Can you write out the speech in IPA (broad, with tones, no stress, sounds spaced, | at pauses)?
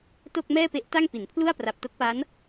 t o˥˩ k̚ m ɛː˥˩ p e˦˥ ʔ t a˥˩ ŋ p i˩˦ n pʰ l u˥˩ a̯ p r a˨˩ p̚ t o˦˥ k̚ p a˦˥ n